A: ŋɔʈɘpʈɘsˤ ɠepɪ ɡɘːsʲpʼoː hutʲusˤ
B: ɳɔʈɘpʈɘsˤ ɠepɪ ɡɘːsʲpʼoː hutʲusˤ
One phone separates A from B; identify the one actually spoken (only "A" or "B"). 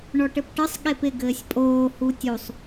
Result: B